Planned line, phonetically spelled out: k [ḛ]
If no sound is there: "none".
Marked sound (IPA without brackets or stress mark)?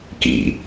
ḭ